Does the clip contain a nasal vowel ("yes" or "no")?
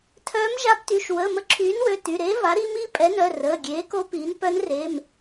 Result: no